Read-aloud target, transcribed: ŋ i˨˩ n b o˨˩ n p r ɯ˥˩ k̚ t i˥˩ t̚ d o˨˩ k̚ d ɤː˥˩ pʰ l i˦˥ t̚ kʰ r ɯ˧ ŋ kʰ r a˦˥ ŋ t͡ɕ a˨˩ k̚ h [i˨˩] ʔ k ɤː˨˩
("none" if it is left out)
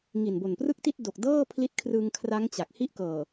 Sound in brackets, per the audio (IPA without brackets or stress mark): i˥˩